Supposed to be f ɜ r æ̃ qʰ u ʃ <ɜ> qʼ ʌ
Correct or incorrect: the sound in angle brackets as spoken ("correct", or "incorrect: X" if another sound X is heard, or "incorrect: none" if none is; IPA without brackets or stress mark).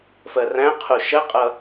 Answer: correct